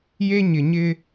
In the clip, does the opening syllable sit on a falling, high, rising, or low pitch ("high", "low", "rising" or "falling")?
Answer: high